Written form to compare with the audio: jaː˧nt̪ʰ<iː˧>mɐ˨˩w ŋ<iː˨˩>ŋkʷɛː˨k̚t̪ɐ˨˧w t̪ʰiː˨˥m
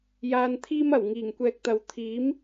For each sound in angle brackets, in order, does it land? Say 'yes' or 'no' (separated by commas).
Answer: no, yes